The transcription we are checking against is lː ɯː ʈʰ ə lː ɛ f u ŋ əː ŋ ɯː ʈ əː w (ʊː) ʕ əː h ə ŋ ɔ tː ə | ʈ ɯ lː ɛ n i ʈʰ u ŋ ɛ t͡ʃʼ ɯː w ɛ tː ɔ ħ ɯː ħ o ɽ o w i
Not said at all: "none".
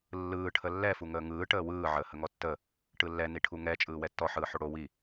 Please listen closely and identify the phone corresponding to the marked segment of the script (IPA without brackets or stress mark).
ɯː